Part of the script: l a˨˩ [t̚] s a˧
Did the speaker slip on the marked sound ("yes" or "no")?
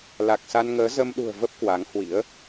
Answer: yes